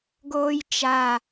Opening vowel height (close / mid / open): mid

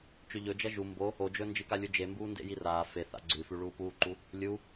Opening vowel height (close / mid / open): mid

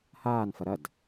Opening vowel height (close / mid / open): open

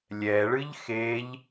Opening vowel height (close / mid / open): mid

